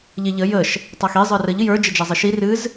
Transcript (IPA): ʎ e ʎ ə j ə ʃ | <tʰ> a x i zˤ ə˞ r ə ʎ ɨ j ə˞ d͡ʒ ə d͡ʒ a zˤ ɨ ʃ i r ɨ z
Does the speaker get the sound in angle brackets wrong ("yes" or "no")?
yes